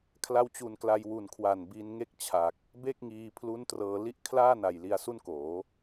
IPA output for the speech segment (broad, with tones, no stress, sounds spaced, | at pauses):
kʰ l a˧ w t͡ɕ u˨˩ n k l a˧ j w u˨˩ n kʰ w a˨˩ n b iː˧ n ŋ e˥˩ k̚ t͡ɕʰ a˨˩ k̚ | b e˥˩ k̚ ŋ iː˧ pʰ l u˦˥ n t r ɤː˧ l i˥˩ ʔ kʰ l aː˥˩ n a˨˩ j l i˧ a̯ s u˥˩ n k oː˩˦